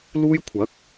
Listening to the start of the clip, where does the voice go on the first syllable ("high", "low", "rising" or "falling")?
high